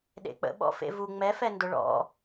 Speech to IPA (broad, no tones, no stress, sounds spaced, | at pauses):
ɗ ḛ k͡p ə̰ ɓ ɔ̰ f ḛ v u ŋ͡m ɛ f ɛ n d ʊ ɭ ɔ̰